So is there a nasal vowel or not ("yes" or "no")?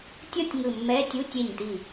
no